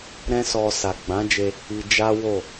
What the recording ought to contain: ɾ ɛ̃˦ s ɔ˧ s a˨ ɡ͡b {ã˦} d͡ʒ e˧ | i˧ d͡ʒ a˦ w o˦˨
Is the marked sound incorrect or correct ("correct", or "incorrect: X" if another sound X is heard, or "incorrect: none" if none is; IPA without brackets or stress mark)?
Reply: incorrect: ã˨˦